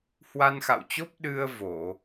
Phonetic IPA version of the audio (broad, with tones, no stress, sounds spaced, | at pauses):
h w a˧ n x a̰˧˨ w t͡ɕ o˦˥ p̚ ɗ ɨ˧ ə̯ v o˧˩˨